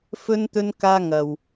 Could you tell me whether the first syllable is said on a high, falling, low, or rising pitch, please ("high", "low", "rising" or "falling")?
high